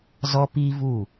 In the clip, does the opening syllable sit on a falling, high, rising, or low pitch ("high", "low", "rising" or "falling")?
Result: high